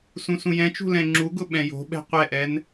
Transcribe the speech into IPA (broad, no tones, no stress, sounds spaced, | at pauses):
s ũ s ũ j ɛ̃ t͡ʃ ṳ l ɛ̃ ŋ͡ǁ u ɡ ʊ ɓ ɛ̃ j o̤ ɓ ɛ̤ qʷ ɛ ʔ ɛ n